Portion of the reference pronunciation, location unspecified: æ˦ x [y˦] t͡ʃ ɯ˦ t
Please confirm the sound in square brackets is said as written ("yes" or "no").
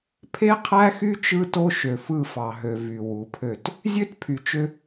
yes